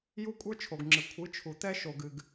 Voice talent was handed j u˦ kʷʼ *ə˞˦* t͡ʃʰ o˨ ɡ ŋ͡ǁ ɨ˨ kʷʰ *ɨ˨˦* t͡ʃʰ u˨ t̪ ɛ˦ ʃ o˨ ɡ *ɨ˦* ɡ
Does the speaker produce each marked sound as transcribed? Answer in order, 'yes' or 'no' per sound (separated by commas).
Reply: yes, yes, no